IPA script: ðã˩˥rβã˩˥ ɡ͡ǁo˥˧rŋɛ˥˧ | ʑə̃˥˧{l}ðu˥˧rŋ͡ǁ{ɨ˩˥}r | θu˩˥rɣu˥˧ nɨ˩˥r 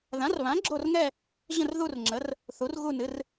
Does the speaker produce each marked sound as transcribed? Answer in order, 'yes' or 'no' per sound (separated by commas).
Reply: no, no